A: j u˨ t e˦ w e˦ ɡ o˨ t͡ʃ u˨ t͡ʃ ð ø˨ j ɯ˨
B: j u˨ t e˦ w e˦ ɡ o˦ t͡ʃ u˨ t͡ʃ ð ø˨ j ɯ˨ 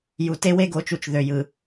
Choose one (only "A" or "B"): A